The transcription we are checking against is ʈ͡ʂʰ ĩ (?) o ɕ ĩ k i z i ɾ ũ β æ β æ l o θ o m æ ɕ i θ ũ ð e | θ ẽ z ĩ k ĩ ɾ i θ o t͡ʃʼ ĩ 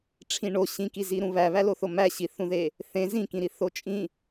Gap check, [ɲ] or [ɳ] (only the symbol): ɳ